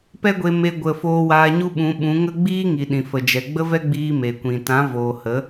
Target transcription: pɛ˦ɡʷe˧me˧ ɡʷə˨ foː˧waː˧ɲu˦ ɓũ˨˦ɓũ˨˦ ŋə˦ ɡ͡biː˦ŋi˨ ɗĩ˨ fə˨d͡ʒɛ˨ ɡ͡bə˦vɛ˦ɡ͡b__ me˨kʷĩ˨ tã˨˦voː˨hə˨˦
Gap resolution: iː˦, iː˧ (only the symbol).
iː˧